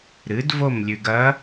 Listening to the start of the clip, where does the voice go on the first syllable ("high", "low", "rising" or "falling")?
rising